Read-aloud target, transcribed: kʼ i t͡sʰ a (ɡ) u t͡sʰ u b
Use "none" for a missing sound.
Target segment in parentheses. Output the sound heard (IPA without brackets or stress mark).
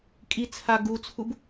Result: ɡ